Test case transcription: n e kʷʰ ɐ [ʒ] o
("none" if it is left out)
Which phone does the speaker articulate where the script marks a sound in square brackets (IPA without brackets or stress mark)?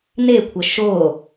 ʃ